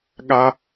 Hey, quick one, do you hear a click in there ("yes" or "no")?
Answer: no